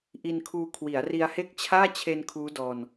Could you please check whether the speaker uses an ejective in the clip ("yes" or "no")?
no